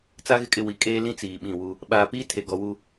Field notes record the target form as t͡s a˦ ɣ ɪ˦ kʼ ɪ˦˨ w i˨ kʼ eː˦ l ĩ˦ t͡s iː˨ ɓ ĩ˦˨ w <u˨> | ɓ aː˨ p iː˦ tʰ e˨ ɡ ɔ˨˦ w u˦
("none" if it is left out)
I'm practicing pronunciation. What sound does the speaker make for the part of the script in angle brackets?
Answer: u˦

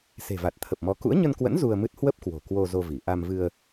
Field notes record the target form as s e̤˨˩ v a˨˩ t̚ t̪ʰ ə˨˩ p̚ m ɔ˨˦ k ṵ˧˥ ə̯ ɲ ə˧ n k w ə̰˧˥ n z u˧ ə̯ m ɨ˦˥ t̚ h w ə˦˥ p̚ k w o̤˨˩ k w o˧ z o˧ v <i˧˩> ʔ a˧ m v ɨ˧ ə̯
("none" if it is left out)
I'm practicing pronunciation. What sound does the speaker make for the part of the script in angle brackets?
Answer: i˧˩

